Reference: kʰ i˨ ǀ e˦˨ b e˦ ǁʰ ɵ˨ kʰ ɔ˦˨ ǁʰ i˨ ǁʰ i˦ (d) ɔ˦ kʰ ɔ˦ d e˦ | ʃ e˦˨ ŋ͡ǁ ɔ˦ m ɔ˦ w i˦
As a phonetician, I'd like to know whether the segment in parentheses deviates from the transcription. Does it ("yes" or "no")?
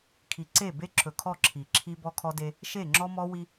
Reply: yes